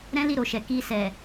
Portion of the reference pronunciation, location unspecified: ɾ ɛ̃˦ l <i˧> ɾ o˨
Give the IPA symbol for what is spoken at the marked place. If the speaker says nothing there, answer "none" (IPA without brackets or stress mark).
i˦˨